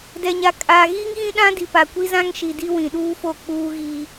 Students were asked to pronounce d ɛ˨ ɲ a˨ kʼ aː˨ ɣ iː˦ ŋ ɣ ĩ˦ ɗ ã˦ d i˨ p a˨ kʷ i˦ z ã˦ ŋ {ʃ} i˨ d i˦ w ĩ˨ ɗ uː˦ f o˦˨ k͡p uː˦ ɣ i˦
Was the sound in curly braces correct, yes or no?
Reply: yes